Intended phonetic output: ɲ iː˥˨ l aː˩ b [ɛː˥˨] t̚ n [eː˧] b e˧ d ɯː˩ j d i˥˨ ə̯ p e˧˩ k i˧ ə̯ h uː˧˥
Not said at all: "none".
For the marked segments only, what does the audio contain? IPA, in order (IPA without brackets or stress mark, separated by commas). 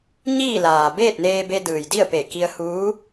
eː˥˨, eː˧